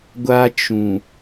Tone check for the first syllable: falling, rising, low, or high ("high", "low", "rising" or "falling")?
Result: high